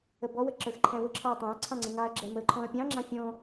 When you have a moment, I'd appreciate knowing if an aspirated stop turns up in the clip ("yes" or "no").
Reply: yes